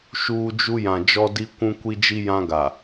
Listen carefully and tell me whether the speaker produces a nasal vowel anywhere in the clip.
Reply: yes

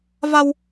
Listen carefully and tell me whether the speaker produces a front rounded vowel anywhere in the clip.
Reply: no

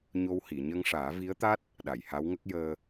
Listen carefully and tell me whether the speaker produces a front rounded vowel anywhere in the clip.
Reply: no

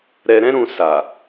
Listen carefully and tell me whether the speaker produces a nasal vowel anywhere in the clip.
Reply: yes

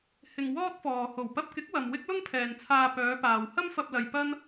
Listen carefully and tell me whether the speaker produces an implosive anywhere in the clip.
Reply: no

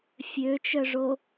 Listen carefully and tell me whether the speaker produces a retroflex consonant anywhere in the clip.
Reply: yes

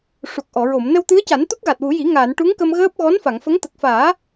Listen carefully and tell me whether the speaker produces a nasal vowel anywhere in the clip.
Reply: no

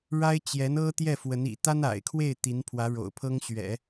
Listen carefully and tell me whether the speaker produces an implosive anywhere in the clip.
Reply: no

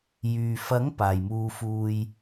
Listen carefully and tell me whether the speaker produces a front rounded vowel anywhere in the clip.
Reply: yes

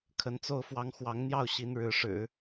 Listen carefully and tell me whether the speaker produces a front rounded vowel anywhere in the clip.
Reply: no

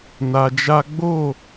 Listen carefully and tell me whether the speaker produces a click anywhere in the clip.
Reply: no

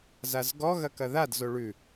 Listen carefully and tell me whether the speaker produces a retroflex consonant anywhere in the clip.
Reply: yes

